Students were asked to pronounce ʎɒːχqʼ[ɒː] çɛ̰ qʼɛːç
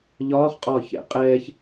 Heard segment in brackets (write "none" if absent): ɒː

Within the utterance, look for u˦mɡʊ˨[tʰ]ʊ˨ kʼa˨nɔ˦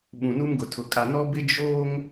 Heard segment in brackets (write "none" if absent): tʰ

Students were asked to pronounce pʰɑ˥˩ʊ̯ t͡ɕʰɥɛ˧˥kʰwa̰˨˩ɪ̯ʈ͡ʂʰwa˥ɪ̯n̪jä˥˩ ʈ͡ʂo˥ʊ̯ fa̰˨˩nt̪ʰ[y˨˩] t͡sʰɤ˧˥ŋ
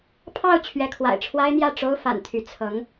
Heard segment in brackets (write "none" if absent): y˧˥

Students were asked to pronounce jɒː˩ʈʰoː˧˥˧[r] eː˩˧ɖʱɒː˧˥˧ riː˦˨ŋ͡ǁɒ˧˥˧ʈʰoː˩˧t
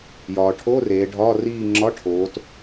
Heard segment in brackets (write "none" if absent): r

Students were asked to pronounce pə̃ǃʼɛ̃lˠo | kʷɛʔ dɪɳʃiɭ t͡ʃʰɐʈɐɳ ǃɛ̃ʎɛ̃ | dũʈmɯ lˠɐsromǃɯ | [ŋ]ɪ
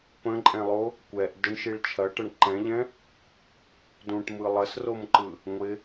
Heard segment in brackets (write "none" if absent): ŋʷ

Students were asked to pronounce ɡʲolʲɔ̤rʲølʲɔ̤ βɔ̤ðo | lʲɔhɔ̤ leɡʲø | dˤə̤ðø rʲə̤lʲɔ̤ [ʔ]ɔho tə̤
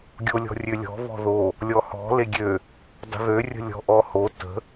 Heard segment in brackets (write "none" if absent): ʔ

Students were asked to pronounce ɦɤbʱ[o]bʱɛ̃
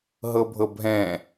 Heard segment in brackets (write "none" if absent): ɤ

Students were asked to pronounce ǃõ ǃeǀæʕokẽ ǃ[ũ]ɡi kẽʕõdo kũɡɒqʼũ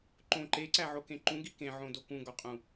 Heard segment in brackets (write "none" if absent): ũ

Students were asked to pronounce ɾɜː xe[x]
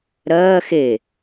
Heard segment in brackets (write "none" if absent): none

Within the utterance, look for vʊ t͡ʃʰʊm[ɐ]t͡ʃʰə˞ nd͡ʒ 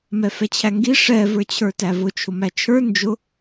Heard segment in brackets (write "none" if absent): æ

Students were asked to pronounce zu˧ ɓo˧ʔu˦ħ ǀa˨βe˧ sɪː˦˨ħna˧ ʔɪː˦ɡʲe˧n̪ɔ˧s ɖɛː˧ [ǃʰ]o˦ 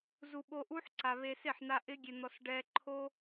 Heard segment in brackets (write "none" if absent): ǃʰ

